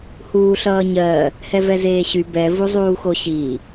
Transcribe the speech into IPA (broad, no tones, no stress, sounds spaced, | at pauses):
h uː ɬ ʌː ɲ ɜ | h ɛ v ɛ z eː ɕ y b ɛ v u zˤ uː x o ɕ i